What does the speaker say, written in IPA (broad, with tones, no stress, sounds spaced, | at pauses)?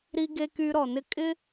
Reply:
ɾ i˧ ɡ e˧ k y˧ ɾ ɔ˨ n ɪ˦ kʼ ɪ˦